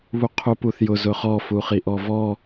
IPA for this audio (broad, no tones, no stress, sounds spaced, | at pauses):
β u qʰ u p u θ j ʊ z ʊ χ ɔ f u χ i ʔ ɔ v ɔ